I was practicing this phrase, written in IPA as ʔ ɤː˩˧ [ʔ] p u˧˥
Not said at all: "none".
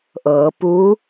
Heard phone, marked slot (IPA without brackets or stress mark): none